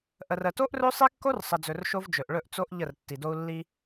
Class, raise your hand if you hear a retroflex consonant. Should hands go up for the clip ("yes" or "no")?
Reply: yes